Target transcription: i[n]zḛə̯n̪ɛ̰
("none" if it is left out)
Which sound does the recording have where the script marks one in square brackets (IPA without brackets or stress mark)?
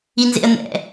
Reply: n